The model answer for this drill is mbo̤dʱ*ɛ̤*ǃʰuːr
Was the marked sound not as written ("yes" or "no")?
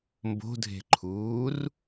yes